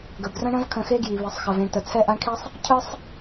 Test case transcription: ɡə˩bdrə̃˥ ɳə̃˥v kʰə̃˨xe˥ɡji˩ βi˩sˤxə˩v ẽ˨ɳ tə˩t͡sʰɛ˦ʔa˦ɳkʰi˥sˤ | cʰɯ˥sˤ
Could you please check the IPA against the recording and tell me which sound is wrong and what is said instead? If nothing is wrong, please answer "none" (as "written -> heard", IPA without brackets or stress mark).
none